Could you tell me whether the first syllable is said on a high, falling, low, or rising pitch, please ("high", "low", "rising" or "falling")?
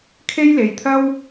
high